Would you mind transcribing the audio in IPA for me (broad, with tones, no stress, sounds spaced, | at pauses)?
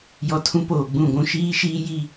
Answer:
j ɔ˨ tʰ ũ˦ p oː˨ ɡ͡b ũ˦˨ ɡʷ ũ˦ ʃ iː˦ ʃ iː˦ j i˦